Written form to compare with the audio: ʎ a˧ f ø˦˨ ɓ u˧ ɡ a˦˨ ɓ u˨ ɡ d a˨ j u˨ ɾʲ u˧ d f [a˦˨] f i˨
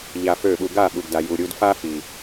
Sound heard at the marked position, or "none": a˦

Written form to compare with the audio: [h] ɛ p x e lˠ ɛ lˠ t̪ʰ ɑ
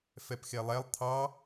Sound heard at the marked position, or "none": f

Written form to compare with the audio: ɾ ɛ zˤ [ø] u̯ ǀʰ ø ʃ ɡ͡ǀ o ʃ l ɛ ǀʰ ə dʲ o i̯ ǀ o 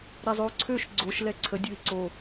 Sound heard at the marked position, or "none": ø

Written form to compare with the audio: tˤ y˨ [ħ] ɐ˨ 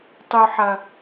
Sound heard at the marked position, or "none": ħ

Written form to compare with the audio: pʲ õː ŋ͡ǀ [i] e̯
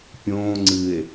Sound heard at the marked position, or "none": ɨ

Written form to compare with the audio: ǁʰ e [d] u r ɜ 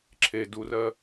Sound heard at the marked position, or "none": d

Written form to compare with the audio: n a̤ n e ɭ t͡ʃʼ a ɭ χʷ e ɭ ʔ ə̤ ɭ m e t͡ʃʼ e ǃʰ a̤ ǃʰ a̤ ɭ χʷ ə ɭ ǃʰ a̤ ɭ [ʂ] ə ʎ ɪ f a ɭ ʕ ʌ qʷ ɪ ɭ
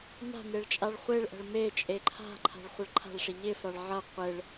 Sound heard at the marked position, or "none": ʂ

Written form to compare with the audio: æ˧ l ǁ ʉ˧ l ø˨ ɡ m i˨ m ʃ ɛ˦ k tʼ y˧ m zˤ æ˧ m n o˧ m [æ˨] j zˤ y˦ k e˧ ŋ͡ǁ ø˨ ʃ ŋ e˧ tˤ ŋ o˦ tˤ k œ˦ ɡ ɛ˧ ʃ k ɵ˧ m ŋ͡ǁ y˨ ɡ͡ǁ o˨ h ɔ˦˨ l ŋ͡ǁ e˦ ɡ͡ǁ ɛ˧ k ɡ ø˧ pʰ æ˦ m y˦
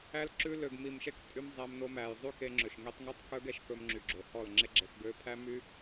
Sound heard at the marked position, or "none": æ˨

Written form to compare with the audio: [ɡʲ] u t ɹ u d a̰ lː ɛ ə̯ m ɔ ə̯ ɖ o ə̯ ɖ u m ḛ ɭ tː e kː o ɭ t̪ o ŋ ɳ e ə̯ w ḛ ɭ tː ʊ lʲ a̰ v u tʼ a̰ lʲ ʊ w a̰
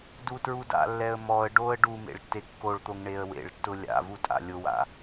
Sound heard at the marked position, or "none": d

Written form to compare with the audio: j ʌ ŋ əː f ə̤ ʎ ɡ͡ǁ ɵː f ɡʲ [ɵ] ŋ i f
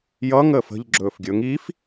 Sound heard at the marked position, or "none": ɵ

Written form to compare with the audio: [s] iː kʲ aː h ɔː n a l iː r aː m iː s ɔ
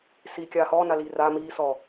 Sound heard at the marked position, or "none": s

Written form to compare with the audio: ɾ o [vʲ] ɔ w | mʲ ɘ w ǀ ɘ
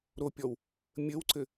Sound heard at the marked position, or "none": pʲ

